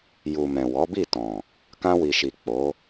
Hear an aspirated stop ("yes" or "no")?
no